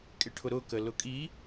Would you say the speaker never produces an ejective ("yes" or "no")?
no